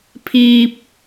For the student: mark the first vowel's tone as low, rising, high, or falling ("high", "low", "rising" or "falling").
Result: high